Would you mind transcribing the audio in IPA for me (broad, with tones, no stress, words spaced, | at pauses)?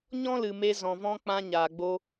ɲɔ̃˦lɨ˨ me˧ zɔ̃˨vɔ̃˧ k͡pã˧ɲaː˨ɡ͡bo˧